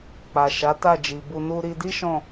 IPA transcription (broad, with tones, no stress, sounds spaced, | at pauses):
k͡p a˨ ʃ a˨˦ t a˦˨ d͡ʒ i˨ b u˧ n u˦ ɾ i˧ d i˦ ʃ ɔ̃˦˨